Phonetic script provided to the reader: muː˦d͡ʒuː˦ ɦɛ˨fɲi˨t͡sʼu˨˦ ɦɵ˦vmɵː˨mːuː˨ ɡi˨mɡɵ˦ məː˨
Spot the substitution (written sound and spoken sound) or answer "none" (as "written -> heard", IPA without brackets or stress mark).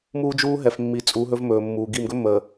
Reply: ɲ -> mː